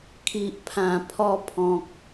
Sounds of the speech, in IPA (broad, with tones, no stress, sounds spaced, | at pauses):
kʰ i˨ ʔ pʰ ã˨˩ pʰ ɔ˧ pʰ ɔ̃˨ k̚